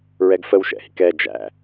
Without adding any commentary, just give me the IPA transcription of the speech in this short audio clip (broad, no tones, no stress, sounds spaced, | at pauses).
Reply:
ɹ ɛ ɡ f ə w ʃ ɛ̰ h ḭ k ɛ d͡ʒ æ̰